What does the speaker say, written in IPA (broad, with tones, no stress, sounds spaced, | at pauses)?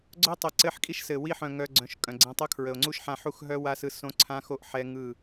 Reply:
ɡ͡ǀ œ˦ tˤ ə˨ ǀ ɘ˧ ħ kʼ i˦ ʃ s ɘ˨ w i˧ ħ œ̃˨ ŋ œ˨ ɡ͡ǀ œ̃˨ ʃ kʼ œ̃˨ ɡ͡ǀ ɛ̃˧ tˤ o˦ kʰ ɹ ə˨ o̯ ŋ͡ǀ u˦ ʃ ħ ã˧ ħ u˦˨ x ɦ œ˦ w a˦ s ɯ˧ s õ˦ ǀʰ ã˦ x o˦ ʔ ħ ɛ˦ ŋ ɯ˦˨